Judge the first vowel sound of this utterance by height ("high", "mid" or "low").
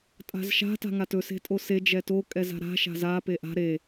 low